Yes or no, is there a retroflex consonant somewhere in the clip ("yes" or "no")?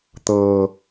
no